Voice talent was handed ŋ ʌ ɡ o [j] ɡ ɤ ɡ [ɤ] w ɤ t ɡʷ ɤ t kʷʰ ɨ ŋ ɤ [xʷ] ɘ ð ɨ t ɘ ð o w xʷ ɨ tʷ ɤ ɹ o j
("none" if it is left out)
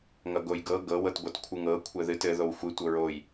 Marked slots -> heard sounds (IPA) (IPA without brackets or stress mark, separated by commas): j, ɤ, kʷʰ